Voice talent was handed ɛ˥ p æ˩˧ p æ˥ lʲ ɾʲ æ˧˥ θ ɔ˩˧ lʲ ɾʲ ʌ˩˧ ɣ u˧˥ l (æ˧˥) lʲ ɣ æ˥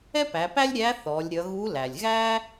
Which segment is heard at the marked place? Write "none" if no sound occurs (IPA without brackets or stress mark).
æ˩